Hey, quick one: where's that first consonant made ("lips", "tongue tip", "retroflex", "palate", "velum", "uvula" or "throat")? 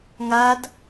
velum